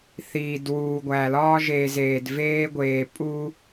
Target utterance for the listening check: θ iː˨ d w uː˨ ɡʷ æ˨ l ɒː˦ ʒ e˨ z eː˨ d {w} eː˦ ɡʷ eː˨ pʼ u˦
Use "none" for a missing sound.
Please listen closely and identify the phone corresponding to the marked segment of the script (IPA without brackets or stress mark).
v